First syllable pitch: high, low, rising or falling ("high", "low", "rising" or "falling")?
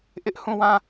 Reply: high